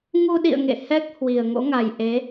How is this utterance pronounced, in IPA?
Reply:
ŋ u˧ ɗ ḭ˧˨ ə̯ ŋ ḛ˧˨ h ɛ˦˥ k̚ h w i˨˩ ə̯ ŋ o̰˧˥ ŋ a˨˩ j ʔ e˨˦

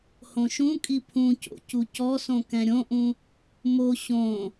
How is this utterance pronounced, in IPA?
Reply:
h õ ʃ ũ kʼ i pʰ ũ c o̰ c u c ɔ s õ k ɛ̃ ɾʲ õ ʔ ũ | m o ɕ õ

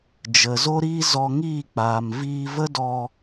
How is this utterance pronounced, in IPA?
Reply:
d͡ʒ ə˨ z o˦ ɾ iː˦ z ɔ˧ ŋ iː˦˨ k͡p aː˨ m v iː˧ v ə˦ d ɔ˧

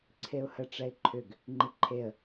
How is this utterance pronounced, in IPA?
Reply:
ǀʰ e ʊ̯ h ə ʈ͡ʂ ɛ ɪ̯ ǃʰ ʏ ɡ | ŋ͡ǃ i ǃʰ e ə̯

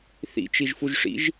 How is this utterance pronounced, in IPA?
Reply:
θ ḭ t͡ʃ i ʒ f u ʒ ʂ ḭ ʒ

